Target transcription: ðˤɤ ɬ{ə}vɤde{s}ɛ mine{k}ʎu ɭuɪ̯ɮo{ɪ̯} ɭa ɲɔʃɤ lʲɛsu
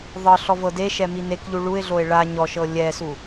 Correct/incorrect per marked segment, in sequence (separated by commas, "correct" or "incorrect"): incorrect, incorrect, correct, correct